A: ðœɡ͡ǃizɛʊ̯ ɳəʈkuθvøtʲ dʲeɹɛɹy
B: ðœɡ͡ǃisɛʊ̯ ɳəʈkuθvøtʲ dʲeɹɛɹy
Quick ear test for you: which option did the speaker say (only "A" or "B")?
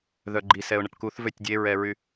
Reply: B